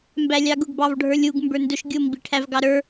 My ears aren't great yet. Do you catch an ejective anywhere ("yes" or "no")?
no